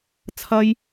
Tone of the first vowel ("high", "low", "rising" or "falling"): high